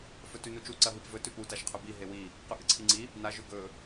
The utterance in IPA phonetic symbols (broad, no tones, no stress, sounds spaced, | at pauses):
f ɵ t ʉ n u t͡ʃ u ǀ ɐ ɦ i p v ɵ t ʉ p u t a ʃ qʰ ɵ b i ɦ e w i | q ʉ ʔ ɨ ǀʰ i ŋ͡ǀ i | n a ʒ ʉ ɡ ɵ